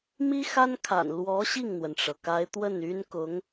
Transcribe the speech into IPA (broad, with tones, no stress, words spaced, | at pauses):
mi˥xa˥nkʰa̰˨˩n lwɔ˧˥ ɕi˥˩ŋn̪wə˩nʈ͡ʂɤ˩ ka˧˥ɪ̯ t̪wə˥˩ny˥nkʊ˧˥ŋ